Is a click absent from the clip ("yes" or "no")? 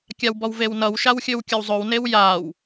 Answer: yes